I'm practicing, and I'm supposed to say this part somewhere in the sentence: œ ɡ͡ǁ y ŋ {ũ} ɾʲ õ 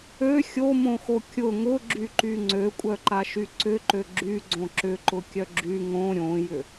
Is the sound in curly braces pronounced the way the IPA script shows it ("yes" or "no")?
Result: no